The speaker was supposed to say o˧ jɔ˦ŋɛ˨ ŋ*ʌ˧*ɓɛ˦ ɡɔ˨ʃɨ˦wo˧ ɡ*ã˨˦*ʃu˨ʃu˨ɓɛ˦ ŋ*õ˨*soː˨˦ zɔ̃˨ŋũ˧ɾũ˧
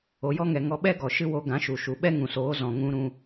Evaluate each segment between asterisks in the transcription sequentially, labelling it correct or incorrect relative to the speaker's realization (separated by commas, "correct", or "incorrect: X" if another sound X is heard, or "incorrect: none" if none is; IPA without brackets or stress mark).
incorrect: ɔ˧, correct, incorrect: ũ˨